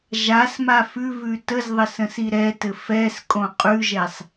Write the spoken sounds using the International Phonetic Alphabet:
ʒ a s m a f ʉ v ʉ t ə z ðˤ ɘ s ə̃ s i ɾ ɛ t ɘ f ɛ s kʼ õ qʼ ʉ ʒ ɛ sˤ

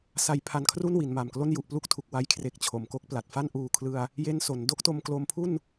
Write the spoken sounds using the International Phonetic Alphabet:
s a˧ j pʰ a˧ n kʰ r u˥˩ n w i˩˦ n m a˨˩ m k l o˥˩ n j u˨˩ ʔ p l u˥˩ k̚ tʰ u˨˩ k̚ w a˦˥ j kʰ r e˨˩ k̚ t͡ɕʰ o˩˦ m k o˦˥ k̚ p l a˨˩ t̚ f a˥˩ n ʔ uː˨˩ kʰ l ɯ˧ a̯ | j e˦˥ n s o˩˦ n d o˦˥ k̚ t o˧ m k l o˧ m pʰ u˥˩ n

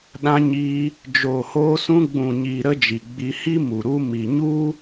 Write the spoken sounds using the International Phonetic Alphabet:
ɗ ã˧ ɲ iː˧ | d͡ʒ oː˨ h oː˧ s ũ˧ ɡ͡b ũ˨ ɲ iː˨ ɾ ə˦ d͡ʒ i˨ ɡ͡b i˧ h i˦ m u˨ ɾ u˧ m i˨ ɲ u˦

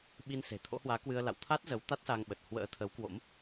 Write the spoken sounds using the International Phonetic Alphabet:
ɓ i˧ n s e̤˨˩ t̪ʰ o̰˧˥ h w aː˨˦ k w ɨ˧ ə̯ l a̰˧˨ w t̪ʰ a˦˥ t̚ z ə˨˦ w t̪ a˦˥ t̚ s a˧ ŋ ɓ ə˨˩ t̚ h w ə̰ː˧˥ t̪ʰ ə˨˦ w k w o̰˧˥ m

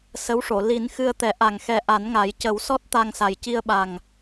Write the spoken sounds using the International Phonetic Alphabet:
s ə˧˥ w ʂ o˨˩˨ l i˨˩˦ n x ɨ˧ ə̯ t̪ ɛ˨˩˦ ʔ a˨˩ ŋ x ɛ˨˩ ʔ a˨˩˦ n ŋ a˨˩˦ j c ə˨˩˦ w s ɔ˦˥ t̚ t̪ a˧ ŋ s a˨˩ j c i˧ ə̯ ɓ a˨˩ ŋ

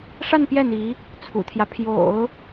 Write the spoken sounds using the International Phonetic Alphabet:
ʂ a˥˧ n p j ɛ˥˩ n̪ i˧˥ | t͡sʰ ṵ˨˩ t̪ʰ j ä˦ pʰ j o̰˨˩˦ ʊ̯

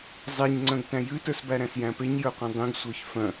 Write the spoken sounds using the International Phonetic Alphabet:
zˤ e ɲ ŋ͡ǀ œ̃ ɡ t æ̃ j ʉ t ə˞ s b æ ɾ æ̃ s j æ̃ p e ɲ j ə˞ qʷ ẽ dˤ ĩ ɡ sʷ ə˞ ç f œ̃

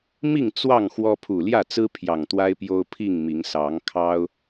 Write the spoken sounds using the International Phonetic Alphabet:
m i˥˨ ŋ t͡s w ɑ˥˨ ŋ x w ɔ˦ pʰ u˨˩ l j ä˥˨ t͡s ɹ̩˦ pʰ j ɑ˨˩ ŋ t̪ w a˦ ɪ̯ p j o˦ ʊ̯ pʰ i˥˨ ŋ m i˨˦ ŋ s ɑ˨˦ ŋ kʰ ɑ˦ ʊ̯

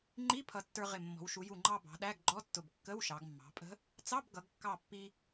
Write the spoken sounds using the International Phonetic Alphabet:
ŋ͡ǃ i˧˥˧ pʰ ʌ˧˩ tː ə˞˧ ʁ ɪ˧˩ mː ɔ̤˩˧ w ʃ u˩˧ j u˧˩ ŋ͡ǃ ɑ˧ b ɑ̤˩˧ ɗ æ˧˥˧ ɡ ɡ͡ǃ ɔ˧˥˧ tː ʊ˧˩ b kː ə˧˥˧ w ʃ ɑ˩˧ ɡ mː ɑ̤˩˧ pʼ ə̤˧˥ | t͡s ɑ˧˥˧ b ɡ ʌ˩˧ ɡ kː ɑ˧˩ pː i˧

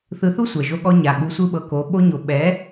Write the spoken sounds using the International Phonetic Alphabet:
θ ɯ˧ θ u˦ sʷ ɛ˨ ʒ o˧ ɠ ɔ˧ ɲ a˨ ɠ u˧ sʷ ɯ˦ ɓ ɤ˧ k o˨˦ ɓ o˧ ɲ o˨ ɓ ɛ˨˦

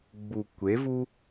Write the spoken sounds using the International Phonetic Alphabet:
ɡ͡b u˨ kʷ e˨˦ v u˦

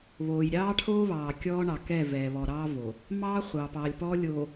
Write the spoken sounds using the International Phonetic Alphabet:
β oː˨ j ɾʲ ɑː˦ ʈʰ oː˦ β ɑː˨ kʲ ɔː˦ ɳ ɑ˨ k ɛ˦˨ v ɛː˨ β ɔ˨ ɾ ɑː˦ v o˨ | m ɑː˦ χʷ ɑː˨ p ɑː˨ lʲ p ɔː˦ lʲ oː˨

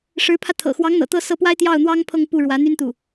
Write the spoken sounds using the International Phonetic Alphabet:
ʂ ɻ̩˧˥ pʰ ä˧ t̪ʰ ɤ̰˨˩ x w ɑ˧˥ ŋ n̪ ɤ̰˨˩ t̪ ɤ˥˧ s ɤ˥˩ p w a˥ ɪ̯ t̪ j ɑ˥˩ ʊ̯ n̪ w ɑ˥ ŋ pʰ ɤ˥˧ ŋ p u˥˩ ɻ w ä˧˥ n̪ y˥ n t̪ u˥˩

